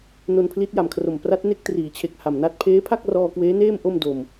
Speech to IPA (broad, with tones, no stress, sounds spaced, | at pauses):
n o˧ n pʰ l i˦˥ t̚ j a˨˩ m kʰ r o˨˩ m p r a˦˥ t̚ n e˥˩ k̚ t r iː˩˦ t͡ɕʰ e˨˩ k̚ h a˨˩ m n a˥˩ t̚ pʰ eː˦˥ pʰ a˥˩ k̚ r ɔː˧ k w eː˦˥ n eː˥˩ m ʔ o˥˩ m d o˨˩ m